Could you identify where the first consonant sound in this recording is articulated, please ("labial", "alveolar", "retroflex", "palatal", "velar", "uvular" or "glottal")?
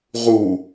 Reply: uvular